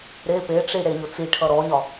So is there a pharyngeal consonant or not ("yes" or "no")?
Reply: no